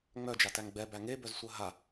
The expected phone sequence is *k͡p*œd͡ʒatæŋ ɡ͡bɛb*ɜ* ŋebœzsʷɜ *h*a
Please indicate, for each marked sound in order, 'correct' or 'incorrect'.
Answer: incorrect: ŋ͡m, incorrect: æ, incorrect: ɦ

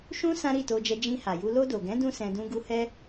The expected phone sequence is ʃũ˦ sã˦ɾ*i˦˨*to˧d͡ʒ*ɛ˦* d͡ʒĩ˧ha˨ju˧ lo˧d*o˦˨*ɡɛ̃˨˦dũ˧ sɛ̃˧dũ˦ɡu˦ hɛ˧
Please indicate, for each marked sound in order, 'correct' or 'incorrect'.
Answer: correct, incorrect: ɛ˧, incorrect: o˨

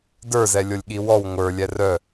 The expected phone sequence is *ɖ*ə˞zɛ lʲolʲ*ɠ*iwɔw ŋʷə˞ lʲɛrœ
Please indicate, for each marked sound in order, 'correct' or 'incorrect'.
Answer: incorrect: d, correct

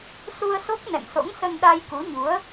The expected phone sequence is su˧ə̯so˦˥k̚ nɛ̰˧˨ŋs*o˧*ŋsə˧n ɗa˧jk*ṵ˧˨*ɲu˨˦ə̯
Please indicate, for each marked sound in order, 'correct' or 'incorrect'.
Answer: incorrect: o̰˧˥, incorrect: u˨˦

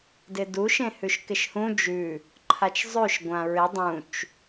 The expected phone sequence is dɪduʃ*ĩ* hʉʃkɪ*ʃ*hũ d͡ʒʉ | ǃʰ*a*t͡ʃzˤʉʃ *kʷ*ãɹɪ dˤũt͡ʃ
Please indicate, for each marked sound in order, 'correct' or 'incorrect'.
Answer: incorrect: ẽ, correct, correct, incorrect: ɡʷ

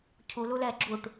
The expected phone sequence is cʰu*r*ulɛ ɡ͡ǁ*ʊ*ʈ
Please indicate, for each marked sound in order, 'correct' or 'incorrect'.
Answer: incorrect: l, incorrect: u

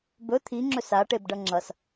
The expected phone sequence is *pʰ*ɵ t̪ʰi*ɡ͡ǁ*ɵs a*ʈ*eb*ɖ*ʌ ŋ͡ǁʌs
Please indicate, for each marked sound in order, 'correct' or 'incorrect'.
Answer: incorrect: b, incorrect: ŋ͡ǁ, correct, correct

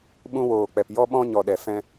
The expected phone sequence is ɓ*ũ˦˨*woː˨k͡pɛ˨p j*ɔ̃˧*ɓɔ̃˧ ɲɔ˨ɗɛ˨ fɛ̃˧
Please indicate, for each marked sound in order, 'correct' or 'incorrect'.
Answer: incorrect: ũ˧, incorrect: ɔ˧

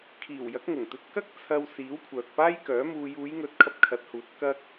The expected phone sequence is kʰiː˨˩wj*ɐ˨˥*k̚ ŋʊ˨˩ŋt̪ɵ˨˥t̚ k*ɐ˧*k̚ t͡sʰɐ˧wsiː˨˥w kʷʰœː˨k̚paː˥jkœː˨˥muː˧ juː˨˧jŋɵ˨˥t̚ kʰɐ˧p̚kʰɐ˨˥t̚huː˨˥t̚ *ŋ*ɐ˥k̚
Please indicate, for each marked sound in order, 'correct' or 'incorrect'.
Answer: correct, incorrect: ɐ˥, incorrect: k

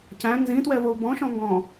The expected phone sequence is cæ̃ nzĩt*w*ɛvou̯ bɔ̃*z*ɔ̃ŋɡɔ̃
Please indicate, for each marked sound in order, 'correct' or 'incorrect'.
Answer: correct, incorrect: ʃ

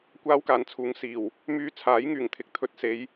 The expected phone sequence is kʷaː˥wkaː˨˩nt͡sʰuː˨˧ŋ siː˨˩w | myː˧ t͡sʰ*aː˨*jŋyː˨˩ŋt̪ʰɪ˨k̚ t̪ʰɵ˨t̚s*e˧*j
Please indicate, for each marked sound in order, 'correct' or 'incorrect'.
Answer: incorrect: aː˨˥, incorrect: e˨˧

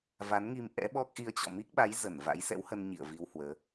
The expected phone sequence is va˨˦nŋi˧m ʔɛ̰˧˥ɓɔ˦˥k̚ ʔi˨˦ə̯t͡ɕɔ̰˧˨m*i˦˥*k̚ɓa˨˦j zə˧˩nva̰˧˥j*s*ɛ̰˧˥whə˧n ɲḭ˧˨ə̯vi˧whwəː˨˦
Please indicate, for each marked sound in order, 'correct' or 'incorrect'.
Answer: correct, correct

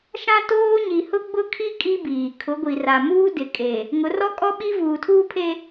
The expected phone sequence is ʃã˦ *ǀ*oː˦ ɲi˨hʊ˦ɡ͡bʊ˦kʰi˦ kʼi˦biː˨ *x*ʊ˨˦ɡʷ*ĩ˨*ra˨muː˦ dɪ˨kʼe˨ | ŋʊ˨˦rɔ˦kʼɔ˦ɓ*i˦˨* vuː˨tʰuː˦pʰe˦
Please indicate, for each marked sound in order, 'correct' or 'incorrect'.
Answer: incorrect: t, incorrect: kʰ, incorrect: i˨, incorrect: i˦

